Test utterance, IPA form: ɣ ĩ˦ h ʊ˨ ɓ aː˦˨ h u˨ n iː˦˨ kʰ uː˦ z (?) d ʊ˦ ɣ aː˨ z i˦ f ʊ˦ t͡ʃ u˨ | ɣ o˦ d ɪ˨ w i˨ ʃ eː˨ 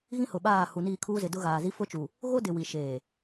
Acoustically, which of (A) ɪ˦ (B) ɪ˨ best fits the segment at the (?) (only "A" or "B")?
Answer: B